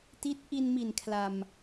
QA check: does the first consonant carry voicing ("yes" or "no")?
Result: no